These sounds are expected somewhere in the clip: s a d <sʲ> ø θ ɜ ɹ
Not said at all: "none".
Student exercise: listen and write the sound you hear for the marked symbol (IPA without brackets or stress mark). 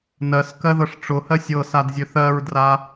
zʲ